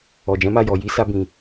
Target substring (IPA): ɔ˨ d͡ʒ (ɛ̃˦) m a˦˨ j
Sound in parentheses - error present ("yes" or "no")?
yes